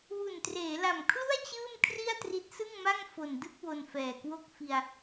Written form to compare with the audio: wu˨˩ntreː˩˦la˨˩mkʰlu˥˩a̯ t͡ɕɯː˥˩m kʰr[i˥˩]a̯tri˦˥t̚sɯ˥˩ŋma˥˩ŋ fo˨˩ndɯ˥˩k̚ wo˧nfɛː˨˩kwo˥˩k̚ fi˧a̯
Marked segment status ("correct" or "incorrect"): correct